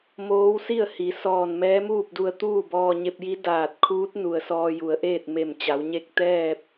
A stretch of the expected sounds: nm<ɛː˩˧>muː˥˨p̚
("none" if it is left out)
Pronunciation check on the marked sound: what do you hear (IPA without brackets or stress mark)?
ɛː˧˥